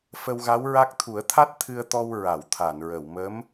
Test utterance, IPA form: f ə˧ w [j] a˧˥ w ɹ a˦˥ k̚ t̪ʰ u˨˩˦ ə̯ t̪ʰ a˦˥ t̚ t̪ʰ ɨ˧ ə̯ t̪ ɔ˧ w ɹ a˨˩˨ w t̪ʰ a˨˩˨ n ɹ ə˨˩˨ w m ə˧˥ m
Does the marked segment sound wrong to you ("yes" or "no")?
yes